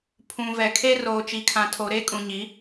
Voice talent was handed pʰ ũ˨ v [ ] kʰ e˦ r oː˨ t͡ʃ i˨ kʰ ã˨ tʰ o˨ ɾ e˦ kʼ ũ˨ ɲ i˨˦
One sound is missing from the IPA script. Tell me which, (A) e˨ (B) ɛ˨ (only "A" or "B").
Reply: B